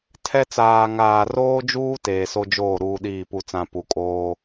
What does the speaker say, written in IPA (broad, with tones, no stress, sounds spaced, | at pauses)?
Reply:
tʰ ɛ˦ t͡s aː˨ ŋ aː˨ r oː˦ d͡ʒ uː˦ t eː˨ s o˦ d͡ʒ oː˦˨ ɾ uː˦ ɗ iː˦˨ p u˦ t͡s ã˦ p u˨ kʼ oː˦